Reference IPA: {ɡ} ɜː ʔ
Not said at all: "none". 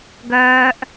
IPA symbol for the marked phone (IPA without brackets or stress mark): ɡ